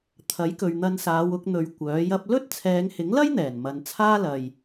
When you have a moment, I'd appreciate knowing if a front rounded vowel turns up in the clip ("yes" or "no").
yes